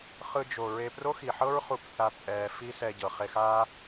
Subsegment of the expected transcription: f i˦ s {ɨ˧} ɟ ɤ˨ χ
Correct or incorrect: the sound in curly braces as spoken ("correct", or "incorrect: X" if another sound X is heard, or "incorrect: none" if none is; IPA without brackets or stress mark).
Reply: incorrect: ɛ˧